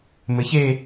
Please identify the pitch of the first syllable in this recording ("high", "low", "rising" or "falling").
rising